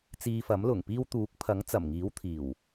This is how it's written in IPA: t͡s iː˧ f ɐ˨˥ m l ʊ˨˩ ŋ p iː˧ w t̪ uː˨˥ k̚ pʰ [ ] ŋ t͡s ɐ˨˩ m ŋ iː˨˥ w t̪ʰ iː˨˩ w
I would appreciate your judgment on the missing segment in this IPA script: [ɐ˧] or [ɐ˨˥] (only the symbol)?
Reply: ɐ˨˥